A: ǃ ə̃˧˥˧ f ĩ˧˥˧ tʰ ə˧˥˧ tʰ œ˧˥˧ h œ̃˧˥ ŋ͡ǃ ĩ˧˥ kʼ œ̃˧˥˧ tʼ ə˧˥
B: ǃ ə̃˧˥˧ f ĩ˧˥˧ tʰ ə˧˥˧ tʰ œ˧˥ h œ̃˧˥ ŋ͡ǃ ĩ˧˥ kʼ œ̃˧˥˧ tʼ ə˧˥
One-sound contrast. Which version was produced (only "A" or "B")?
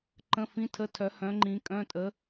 B